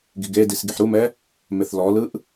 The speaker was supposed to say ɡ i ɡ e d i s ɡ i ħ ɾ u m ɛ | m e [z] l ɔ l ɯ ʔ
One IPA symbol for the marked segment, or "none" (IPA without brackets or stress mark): θ